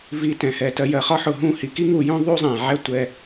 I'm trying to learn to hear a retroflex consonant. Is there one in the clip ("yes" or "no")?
no